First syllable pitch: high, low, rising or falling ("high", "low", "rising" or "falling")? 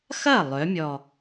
falling